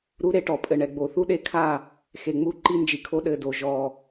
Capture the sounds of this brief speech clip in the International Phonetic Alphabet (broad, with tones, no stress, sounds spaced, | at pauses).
ɾ u˦ ɾ e˦ ʈ ɔ˨ pʼ ɘ˨ ɳ ɛ˨ ɡ͡b o˨ θ u˦ ɗ e˦ kʰ a˦˨ | x e˨ ŋ͡m u˦ ǃ i˦ n d͡ʒ i˨ kʰ o˦ ɗ ɘ˦˨ d o˨ ʒ ɔ˨